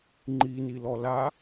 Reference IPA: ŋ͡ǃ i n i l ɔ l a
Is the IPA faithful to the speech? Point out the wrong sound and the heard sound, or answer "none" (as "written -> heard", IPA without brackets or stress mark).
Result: none